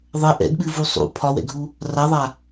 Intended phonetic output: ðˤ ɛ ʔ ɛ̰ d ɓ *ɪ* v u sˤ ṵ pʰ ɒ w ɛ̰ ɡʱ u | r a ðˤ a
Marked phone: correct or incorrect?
incorrect: ɨ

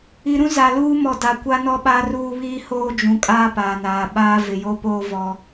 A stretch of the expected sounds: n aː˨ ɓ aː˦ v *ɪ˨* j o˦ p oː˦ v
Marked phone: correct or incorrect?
correct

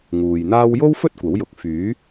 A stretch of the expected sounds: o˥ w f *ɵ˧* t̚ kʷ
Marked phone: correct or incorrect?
incorrect: ɵ˥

